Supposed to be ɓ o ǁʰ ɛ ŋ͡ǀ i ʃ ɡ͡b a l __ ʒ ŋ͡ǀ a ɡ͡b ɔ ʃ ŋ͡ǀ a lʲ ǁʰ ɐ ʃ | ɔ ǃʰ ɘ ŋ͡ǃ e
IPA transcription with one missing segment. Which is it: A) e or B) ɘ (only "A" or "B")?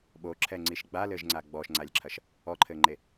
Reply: B